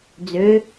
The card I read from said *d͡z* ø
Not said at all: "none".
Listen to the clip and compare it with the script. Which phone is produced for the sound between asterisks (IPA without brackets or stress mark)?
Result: d͡z